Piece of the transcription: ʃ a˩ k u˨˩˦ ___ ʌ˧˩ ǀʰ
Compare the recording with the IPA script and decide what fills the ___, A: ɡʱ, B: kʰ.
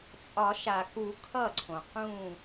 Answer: B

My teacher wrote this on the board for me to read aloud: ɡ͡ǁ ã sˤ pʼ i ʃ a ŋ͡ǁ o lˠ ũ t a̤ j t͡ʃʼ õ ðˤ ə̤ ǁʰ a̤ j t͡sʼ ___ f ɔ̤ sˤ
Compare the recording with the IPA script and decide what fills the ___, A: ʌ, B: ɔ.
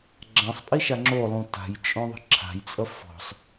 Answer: A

